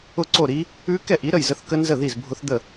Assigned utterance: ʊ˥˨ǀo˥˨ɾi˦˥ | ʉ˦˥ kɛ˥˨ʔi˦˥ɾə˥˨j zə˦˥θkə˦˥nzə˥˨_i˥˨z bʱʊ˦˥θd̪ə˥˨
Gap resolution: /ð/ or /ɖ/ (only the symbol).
ð